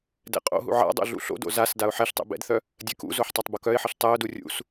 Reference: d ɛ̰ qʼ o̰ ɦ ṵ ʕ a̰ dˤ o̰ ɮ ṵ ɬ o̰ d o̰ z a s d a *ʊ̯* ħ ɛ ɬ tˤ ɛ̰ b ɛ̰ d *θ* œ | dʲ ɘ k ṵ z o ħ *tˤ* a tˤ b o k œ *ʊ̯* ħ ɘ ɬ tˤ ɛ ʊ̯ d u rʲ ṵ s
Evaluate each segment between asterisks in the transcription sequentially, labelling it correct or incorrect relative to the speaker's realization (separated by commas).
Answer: correct, correct, correct, incorrect